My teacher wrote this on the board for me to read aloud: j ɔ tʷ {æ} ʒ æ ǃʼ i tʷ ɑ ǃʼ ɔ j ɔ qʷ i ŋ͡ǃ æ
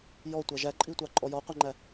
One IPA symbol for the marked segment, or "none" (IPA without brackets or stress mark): æ